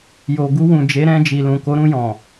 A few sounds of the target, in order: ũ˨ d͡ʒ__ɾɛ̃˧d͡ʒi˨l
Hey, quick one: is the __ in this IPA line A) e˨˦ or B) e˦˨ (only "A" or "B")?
A